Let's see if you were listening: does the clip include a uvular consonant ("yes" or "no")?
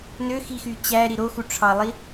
no